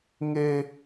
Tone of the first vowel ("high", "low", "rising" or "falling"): high